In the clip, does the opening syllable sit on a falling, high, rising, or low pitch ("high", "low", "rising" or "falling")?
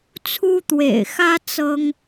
high